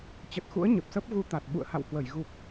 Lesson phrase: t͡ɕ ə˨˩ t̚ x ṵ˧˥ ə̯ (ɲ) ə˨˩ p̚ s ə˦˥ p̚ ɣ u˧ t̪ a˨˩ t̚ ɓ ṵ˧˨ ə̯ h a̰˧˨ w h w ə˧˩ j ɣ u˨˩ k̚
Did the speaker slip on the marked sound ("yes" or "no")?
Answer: no